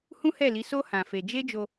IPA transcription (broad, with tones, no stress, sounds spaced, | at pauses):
h ũ˦ h ɛ˦˨ l i˨˦ s o˦ h ã˧ f e˧ d͡ʒ e˦ d͡ʒ o˧